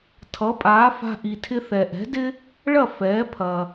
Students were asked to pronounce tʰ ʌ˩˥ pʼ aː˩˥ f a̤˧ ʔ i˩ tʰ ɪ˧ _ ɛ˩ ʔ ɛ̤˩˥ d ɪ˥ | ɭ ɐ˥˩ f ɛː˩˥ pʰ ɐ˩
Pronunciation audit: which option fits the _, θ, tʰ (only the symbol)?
θ